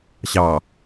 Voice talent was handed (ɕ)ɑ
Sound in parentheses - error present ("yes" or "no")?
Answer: no